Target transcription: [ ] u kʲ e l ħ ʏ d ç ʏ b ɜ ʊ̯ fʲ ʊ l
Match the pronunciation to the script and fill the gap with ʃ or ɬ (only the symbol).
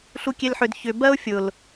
ɬ